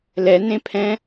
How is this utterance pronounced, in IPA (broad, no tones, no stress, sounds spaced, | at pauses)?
l ɛ n ẽ pʰ ɛ̃